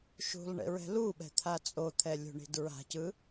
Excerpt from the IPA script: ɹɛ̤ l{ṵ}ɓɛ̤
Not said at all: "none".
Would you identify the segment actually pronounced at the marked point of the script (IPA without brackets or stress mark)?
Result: u